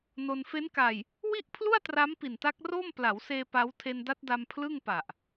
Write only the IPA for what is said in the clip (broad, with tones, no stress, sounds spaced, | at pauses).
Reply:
n o˧ n f e˦˥ n k a˨˩ j | w i˥˩ ʔ pʰ l u˥˩ a̯ t r a˦˥ m p i˨˩ n t a˦˥ k̚ r oː˥˩ m p l a˩˦ w s eː˧ p a˦˥ w tʰ e˧ n d a˦˥ t̚ d a˧ m pʰ l ɯ˥˩ ŋ p a˨˩ ʔ